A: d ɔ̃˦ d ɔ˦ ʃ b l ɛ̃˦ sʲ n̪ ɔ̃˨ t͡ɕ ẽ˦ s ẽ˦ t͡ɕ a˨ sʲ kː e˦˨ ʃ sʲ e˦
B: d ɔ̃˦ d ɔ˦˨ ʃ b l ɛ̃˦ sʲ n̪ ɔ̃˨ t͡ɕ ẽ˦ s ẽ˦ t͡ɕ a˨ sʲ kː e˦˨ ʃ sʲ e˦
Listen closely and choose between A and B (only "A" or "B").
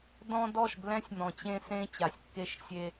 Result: B